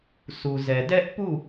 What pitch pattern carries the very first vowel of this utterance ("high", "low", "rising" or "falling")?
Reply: low